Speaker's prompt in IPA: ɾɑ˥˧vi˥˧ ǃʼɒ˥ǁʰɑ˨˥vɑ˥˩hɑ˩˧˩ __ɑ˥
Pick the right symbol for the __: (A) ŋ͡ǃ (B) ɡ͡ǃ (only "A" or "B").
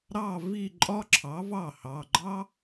B